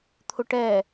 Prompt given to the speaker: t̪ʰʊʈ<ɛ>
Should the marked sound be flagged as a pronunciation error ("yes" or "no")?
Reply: no